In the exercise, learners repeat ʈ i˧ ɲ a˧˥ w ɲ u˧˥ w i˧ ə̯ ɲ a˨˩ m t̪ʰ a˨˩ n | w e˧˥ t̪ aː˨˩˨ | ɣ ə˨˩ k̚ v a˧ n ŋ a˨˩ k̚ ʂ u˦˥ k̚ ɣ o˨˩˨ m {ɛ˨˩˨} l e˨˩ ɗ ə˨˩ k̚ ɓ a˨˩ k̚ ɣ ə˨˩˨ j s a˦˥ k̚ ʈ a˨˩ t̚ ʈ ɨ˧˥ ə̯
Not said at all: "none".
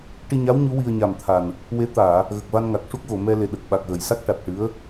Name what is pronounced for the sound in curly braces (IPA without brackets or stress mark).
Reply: ɛ˧